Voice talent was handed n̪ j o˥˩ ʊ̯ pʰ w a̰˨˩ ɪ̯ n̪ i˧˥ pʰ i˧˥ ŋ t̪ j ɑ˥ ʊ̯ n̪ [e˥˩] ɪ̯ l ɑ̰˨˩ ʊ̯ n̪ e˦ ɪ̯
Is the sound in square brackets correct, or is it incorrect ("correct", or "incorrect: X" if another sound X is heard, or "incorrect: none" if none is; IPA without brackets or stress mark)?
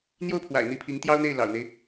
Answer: correct